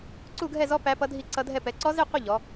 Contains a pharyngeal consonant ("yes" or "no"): no